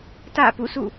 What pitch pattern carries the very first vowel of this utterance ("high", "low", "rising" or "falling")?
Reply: falling